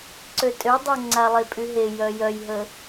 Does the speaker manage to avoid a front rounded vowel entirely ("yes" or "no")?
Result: no